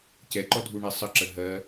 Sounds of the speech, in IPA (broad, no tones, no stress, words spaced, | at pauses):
cɛǃɔdʱuɳɛ sˤəǁə ɦɜ